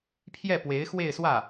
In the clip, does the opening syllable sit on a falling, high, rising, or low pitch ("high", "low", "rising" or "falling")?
falling